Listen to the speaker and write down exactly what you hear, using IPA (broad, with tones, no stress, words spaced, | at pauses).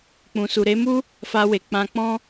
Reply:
k͡pũ˨su˨ɾe˨˦mu˦ | fa˧we˨ k͡pã˧k͡pɔ̃˦